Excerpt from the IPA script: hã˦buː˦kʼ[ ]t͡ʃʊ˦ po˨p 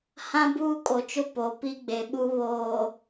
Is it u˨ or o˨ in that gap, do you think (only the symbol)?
o˨